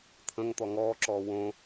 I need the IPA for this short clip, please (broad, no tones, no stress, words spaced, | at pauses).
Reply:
t̪ʰə̃ŋt̪ɔ ŋɔːǁɔː wõ